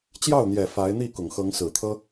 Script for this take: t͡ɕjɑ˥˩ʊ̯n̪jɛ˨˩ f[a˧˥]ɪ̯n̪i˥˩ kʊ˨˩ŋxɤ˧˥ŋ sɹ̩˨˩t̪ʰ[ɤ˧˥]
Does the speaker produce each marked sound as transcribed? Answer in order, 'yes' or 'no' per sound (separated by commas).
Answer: yes, no